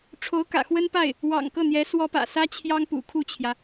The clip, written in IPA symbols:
ʈ͡ʂʰ o˧˥ ʊ̯ k ä̰˨˩ x w ə˥ n p a˥˩ ɪ̯ | w ɑ̰˨˩ ŋ k ɤ˥˩ n̪ j ɛ˧˥ s w ɔ˥ p ä̰˨˩ s ä˥ t͡ɕʰ j ɑ˥ ŋ p ṵ˨˩ kʰ u˥˩ t͡ɕʰ j ä˩

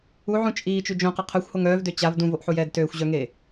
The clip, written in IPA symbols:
u ʕ ũ t͡ʃʼ iː t͡ʃ y d͡ʒ õ q ə qʰ œ xʷ h o ŋ œː v d ø t͡ɕ a v d ũ v o ʔ ħ u j ɛː d t øː xʷ ʑ œ ŋ eː

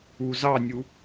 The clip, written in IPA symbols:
u z ɑ nʲ u

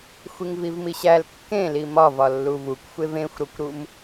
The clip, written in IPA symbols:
xʷ i ŋ v i v m i ɕ æ l kː ẽ l i m ɒ v ɒ lː u v u kʷ xʷ e v ẽ xʷ ɾ o kʷ ɾ u m

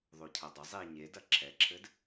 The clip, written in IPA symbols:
ðˤ o cʰ ɐ dˤ ɐ zˤ i ɲ e d ɐ ǁʰ ɛ ǁʰ ɘ d

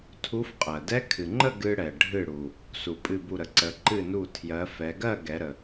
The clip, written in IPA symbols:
tʰ u˧˥ f qʼ ɜ˩ d ɛ˧˥ kʰ ɨ˩ ŋ͡ǃ ə˥˨ ɡ ɨ˧ ɽ ɛ˩ ɖʱ ɨ˧˩ ɽ u˩ | s u˩ pʼ ɨ˧˩ b u˧˩ ɾ ə˩ ǀ ə˩˧ ǃ ɨ˧˩ n u˧˩ tʰ j ɜ˩˧ f ɛ˩˧ ɡ ɜ˥˨ ɡ ɛ˩˧ ɾ ə˩

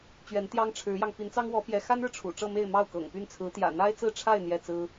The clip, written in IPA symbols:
t͡ɕ ɥ ɛ˧˥ n t̪ j ɑ˥ ŋ ʈ͡ʂʰ ɻ̩˧˥ j ɑ˧ ŋ p i˧˥ n t͡s ɑ˥ ŋ w ɔ˧˥ p j ɛ˧˥ x a˥ n ɻ ɻ̩˨ ʈ͡ʂʰ ṵ˨˩ ʈ͡ʂ ɤ˥˧ m e˥˧ ɪ̯ m ɑ˥˩ ʊ̯ k ɤ̰˨˩ ŋ p y˥˩ n t͡sʰ ɹ̩˧˥ t̪ j ä̰˨˩ n̪ a˥ ɪ̯ t͡s ɹ̩˥˧ ʈ͡ʂʰ a˥˧ ɪ̯ n̪ j ɛ˥˩ t͡s ɹ̩˥

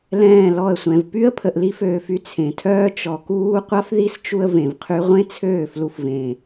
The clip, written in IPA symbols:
l ɛ̃ː˦˨ l ɔ˦˨ ə̯ sʷ ɛ̃˨ v p y˦ ə̯ pʰ ə˨ ʔ l i˦ f øː˨ f y˧ t͡sʰ ẽ˨ tʰ œː˦ t͡ʃ ɔ˨ k uː˦ qʷ a˦ f ð i˦ s t͡ʃ u˧ ə̯ v ẽ˨ v qʰ y˦ ʁʷ ẽ˦ t͡sʰ øː˦˨ f l u˧ f v ẽ˨

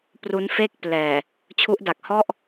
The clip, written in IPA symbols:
p r u˦˥ n f e˥˩ k̚ p l ɛː˨˩ | t͡ɕʰ u˦˥ ʔ d a˨˩ k̚ h ɔ˥˩ ʔ

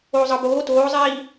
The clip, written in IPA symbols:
oː zˤ ɤ b oː t oː zˤ iː

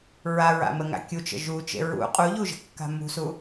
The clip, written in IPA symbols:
ɹ a ɹ a̰ m ə ŋ a̰ kʲ u t͡ʃ ə̰ ʒ u t͡ʃ ḛ ɹ ṵ qʼ u ʎ u ʒ ə̤ kː a̤ m ṳ s u

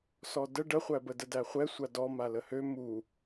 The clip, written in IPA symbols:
s ɔ d ə ɖ ə χʷ æ b ə d ə d æ χʷ ɛ sʷ a d ɔ m a l ə h ø m u

